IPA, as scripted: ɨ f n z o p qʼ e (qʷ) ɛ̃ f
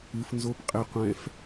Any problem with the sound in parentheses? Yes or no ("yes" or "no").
no